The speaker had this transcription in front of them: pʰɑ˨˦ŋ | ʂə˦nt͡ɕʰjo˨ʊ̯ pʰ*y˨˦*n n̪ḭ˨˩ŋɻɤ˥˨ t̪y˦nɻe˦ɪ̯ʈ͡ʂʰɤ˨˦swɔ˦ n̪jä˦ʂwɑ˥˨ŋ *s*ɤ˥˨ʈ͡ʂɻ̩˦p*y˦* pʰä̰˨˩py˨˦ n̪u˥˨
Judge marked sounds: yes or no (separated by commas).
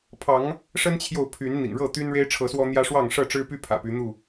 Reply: yes, no, yes